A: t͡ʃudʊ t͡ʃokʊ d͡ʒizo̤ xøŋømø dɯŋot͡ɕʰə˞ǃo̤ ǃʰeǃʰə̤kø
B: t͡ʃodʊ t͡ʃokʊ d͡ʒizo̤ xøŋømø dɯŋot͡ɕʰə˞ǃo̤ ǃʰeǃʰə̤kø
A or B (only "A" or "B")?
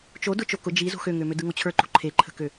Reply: B